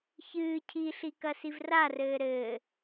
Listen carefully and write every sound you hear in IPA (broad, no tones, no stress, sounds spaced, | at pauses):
ç ɨː cʰ i ɬ i k ɐ s i v r a r ɘː ɾ ɘː